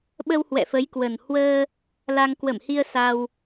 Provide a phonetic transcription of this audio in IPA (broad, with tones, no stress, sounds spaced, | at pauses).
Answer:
ɓ ə˧ w h w ɛ̰˧˨ f ə˨˦ j k w ə˨˩ n h w əː˧ | l a˧ ŋ k w ə˧˩ m h i˧ ə̯ s a˧ w